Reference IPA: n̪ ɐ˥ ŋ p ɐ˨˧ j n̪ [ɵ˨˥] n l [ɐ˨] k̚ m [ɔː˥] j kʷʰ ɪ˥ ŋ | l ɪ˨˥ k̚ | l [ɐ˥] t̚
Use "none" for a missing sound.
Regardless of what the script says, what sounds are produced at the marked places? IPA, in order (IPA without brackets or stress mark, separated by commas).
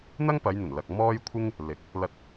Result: ɵ˨˩, ɐ˨, ɔː˥, ɐ˧